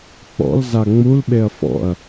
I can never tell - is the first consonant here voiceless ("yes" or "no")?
yes